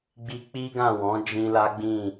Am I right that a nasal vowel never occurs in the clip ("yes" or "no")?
no